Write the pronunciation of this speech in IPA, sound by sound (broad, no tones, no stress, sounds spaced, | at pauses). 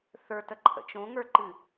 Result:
θ ə˞ t ə ǃʰ ə̰ t͡ʃ õ ŋ ə˞ ǃ ɨ